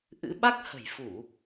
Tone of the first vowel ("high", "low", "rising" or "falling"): rising